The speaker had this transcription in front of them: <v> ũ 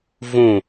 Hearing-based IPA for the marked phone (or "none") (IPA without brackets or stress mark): v